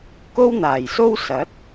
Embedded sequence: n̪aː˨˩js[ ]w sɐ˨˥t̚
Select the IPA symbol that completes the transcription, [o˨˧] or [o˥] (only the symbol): o˥